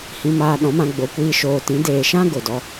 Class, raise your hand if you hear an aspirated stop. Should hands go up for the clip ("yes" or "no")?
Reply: no